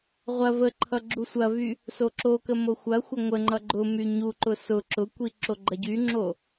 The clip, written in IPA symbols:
ʁʷɐ vəǃʰʌ ɡ͡ǁusʷɐvy | soǁokə moxʷɐxʷɐ ŋʷəŋ͡ǃʌ ɡ͡ǃʊ myɲuǃʊ sʊ ǁʊkʷi ǁoɡ͡ǃɐɟyŋ͡ǁo

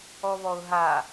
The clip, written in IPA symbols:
ɔβɔʊ̯ɦa

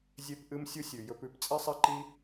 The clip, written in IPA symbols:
zʲe˧pʔɨ˧msʲu˧sʲʉ˨ jɵ˧pʉ˧p t͡sʼi˧sˤi˧ǃi˧

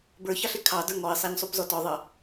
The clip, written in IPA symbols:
bə˞çɑɬɪ kʰɑ də˞ŋɔɪ̯sˤæɲsˤup zɔtɔðˤʌ

